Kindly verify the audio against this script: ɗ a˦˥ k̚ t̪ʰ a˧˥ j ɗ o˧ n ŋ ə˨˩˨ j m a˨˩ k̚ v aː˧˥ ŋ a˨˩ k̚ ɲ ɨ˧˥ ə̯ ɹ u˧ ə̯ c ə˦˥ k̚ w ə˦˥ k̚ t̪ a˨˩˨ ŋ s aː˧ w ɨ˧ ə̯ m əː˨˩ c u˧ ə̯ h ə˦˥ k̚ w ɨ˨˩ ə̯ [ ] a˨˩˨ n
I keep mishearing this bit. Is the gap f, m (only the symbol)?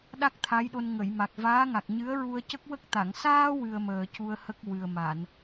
m